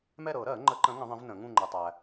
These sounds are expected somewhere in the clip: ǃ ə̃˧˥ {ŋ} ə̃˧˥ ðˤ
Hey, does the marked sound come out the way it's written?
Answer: yes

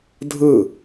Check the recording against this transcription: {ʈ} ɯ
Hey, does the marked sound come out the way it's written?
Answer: no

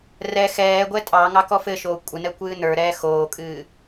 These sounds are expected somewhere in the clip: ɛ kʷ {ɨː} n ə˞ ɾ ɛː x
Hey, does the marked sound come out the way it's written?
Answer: yes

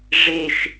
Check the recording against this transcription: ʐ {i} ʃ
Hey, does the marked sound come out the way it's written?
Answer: no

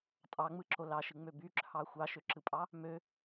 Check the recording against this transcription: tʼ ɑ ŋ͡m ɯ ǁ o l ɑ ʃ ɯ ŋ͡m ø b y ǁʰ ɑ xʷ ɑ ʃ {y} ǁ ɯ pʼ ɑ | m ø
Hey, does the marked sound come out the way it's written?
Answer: no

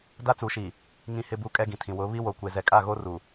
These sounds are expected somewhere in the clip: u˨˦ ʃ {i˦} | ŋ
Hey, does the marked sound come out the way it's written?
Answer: no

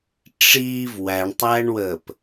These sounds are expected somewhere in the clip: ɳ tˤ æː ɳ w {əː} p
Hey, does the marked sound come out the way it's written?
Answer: yes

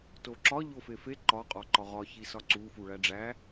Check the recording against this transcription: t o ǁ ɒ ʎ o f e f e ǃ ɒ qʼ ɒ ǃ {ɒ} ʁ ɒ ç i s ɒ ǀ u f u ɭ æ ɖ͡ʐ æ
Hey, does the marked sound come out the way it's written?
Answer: yes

